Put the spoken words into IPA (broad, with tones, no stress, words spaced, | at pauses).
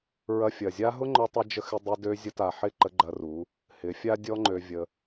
ɹɐ˧fʲɐ˨zʲa˦ ɦʊ˦ŋ͡ǃɔ˧tˤʊ˧ d͡ʒə˧ xɪ˧ dˤɪ˧dø˧ zʲə˧ta˨ ħɪ˦˨ǃə˧ ɡ͡ǃɐ˧ru˨˦ | hɪ˨˦fʲa˦dʲɔ˦ ŋ͡ǃø˧vʲə˧